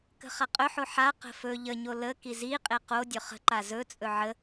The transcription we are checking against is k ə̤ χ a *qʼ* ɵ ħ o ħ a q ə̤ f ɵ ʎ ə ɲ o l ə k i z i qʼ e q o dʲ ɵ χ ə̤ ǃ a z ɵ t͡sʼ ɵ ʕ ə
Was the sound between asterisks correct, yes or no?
yes